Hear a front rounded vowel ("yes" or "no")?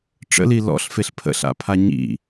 no